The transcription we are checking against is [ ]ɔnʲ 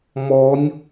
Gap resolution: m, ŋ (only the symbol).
m